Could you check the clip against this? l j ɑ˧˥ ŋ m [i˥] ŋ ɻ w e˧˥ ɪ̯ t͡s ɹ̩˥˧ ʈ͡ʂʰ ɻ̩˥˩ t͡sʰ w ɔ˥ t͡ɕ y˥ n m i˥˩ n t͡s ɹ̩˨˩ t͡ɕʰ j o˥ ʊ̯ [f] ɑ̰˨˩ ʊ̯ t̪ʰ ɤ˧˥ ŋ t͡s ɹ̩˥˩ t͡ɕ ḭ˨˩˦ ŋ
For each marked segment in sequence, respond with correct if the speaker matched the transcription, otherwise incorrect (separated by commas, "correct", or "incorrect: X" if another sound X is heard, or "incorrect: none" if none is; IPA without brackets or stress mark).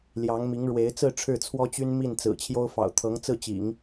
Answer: incorrect: i˧˥, correct